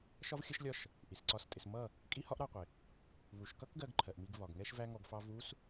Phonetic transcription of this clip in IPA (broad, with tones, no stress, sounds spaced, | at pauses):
ʃ ɒ˦ v xʲ ə˦ ʃ lʲ ɒ˦ ʃ | ʔ i˨ s ǀ ɒ˦˨ s tʼ ɪ˧ s m ʌ˦˨ | kʼ i˦ h ɒ˦ ʔ ɾ ɑ˧ qʷ ɪ˨ | β u˨ ʃ k ʌ˦ k ɡ ɜ˦ ɡ ǃʰ ɜ˨ ʔ m i˧ ɡ β ɒ˨ ɡ ŋ ɛ˦ ʃ v æ˦ ŋ ɔ˧ ɡ f ɑ˧ v u˦ s